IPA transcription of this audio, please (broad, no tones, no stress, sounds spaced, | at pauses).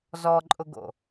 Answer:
z ɔ ǃʼ ʊ ɡ o̰